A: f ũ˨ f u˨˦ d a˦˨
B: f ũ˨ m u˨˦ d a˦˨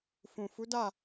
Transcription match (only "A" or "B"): A